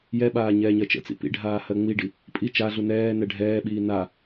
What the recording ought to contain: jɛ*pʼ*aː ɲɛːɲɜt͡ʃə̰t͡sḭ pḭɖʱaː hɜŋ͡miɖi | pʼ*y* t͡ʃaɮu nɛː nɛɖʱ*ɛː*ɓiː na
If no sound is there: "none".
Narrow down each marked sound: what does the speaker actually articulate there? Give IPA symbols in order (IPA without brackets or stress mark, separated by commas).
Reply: ɓ, i, ɛː